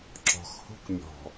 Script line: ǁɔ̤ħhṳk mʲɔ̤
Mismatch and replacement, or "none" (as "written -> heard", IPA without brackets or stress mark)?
ħ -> x